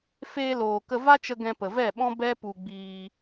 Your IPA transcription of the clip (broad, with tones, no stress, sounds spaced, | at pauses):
f eː˧ l oː˨ k ə˧ v a˦ t͡ʃ ə˧ ɡ ɛ̃˧ p ə˨ v ɛ˦˨ ɓ ɔ̃˦ b ɛ˦ p u˧ ɡ͡b iː˧